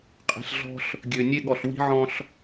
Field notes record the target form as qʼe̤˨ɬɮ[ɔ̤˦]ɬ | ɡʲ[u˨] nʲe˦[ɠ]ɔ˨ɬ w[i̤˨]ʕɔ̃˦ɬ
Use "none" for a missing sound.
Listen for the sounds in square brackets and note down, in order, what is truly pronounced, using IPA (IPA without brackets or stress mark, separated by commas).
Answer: ɔ̤˦, ø˨, ɠ, i̤˦